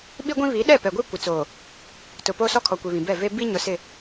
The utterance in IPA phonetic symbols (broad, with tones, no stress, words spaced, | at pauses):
ɓi˦ɡʷĩ˦ βi˨˦ɗɛ˦˨pɛ˨ɡʷe˦ kʷɪ˨ t͡soː˨ | tʊ˨ poː˦sɔ˦kʰɔ˨ kʷi˨βĩ˨bɛ˦˨ ve˦ bi˦ɲʊ˨ sɪ˦˨